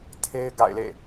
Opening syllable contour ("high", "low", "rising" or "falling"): high